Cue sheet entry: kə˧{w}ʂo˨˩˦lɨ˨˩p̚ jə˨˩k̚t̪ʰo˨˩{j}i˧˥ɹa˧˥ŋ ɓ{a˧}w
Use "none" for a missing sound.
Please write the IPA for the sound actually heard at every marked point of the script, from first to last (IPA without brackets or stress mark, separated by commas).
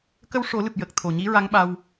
w, ɲ, a˧